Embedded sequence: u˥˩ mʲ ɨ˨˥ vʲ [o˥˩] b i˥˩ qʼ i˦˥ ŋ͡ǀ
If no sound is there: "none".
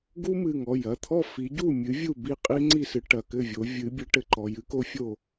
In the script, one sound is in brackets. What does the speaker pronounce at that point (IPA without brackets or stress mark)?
u˥˩